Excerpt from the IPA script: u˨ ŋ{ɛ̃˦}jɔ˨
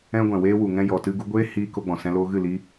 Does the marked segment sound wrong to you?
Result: yes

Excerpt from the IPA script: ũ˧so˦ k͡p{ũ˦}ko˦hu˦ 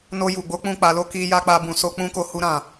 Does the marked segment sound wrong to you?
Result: no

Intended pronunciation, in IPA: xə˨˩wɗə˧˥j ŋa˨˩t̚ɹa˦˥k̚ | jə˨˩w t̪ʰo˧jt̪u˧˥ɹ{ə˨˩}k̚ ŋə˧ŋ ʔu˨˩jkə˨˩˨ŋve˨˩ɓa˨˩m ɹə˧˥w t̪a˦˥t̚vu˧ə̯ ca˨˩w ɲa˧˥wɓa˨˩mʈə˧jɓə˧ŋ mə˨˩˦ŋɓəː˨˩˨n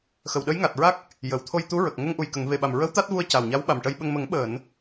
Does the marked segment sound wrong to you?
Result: no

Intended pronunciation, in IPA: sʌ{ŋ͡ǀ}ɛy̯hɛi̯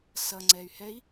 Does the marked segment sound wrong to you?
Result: no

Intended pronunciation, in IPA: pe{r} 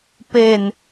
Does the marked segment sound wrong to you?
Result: yes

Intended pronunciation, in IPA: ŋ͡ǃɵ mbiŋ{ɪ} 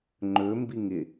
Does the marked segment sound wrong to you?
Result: no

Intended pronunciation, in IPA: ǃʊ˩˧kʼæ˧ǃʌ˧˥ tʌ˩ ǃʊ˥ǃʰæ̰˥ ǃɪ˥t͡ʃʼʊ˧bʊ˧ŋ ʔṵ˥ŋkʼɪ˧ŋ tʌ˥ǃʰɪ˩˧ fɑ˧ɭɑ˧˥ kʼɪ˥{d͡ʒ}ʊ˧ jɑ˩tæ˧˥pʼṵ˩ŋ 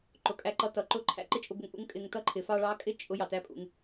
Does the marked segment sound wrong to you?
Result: yes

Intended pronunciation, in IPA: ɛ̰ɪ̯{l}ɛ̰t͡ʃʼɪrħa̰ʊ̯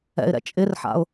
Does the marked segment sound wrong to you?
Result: yes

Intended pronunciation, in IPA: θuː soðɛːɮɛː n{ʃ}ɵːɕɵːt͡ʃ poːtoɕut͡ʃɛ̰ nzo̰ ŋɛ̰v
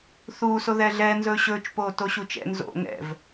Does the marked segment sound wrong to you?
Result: yes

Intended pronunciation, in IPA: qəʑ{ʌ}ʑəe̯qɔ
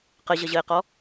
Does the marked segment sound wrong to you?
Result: no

